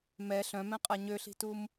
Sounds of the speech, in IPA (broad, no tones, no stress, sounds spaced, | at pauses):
m ɛ ɬ œ̃ m ɛ̃ qʼ a ɲ ø ɬ i̤ t u m